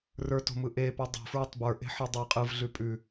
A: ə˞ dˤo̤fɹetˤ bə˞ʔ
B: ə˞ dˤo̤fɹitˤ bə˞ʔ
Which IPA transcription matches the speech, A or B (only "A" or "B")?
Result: A